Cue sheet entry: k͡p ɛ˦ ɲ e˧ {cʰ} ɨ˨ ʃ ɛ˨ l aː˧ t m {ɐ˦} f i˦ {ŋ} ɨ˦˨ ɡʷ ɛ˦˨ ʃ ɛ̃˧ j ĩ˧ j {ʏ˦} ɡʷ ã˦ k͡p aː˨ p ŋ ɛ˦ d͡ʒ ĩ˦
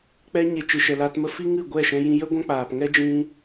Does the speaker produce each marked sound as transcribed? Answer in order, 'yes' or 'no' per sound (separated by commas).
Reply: no, no, yes, no